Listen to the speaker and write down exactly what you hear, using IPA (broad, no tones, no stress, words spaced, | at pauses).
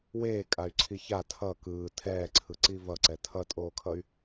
weːkʼay̯ǀʰi ça tʰʌ kɯː tʰɛːǀʰɯǀi vʌǀɛ tʰʌtʼoːkʰʌy̯